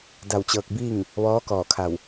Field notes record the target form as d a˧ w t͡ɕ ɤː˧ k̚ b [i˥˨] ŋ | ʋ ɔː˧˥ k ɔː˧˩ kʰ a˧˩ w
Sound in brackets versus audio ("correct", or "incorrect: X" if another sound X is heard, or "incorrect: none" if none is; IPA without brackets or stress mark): incorrect: iː˥˨